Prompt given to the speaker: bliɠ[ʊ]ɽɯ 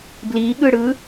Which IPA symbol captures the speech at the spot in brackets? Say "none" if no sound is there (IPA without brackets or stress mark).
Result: ɯ